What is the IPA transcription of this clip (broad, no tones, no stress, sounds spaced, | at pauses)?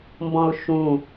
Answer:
m b ɔ̃ ʊ̯ ʃ ũ